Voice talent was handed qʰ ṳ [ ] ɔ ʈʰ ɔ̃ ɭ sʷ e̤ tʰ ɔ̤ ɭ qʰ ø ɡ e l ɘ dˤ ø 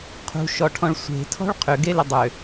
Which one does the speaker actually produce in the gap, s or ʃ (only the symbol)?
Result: ʃ